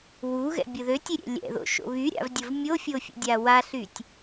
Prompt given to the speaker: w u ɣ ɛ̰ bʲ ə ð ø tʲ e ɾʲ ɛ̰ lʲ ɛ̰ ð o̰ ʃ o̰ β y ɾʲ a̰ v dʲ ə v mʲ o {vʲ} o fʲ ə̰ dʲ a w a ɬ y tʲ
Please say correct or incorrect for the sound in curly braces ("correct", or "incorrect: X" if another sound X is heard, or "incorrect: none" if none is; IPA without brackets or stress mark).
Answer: incorrect: fʲ